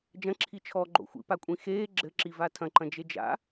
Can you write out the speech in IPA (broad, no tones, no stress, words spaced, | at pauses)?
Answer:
d͡ʒɐ̃ǁʰi t͡ʃʰɔɡ͡ǃo̰ xʷḭpakʷʼĩ xeː ɡ͡ǁɘǁiva tʰɐ̃ǃɐ̃d͡ʒe d͡ʒa̰